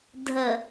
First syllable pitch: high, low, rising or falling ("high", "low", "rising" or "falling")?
low